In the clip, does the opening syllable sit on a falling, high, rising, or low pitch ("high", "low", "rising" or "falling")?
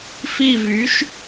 falling